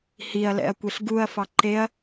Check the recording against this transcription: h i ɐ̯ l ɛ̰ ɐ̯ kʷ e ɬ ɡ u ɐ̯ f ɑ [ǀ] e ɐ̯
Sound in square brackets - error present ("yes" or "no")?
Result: yes